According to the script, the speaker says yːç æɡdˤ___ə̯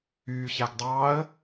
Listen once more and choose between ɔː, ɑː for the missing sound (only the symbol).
ɑː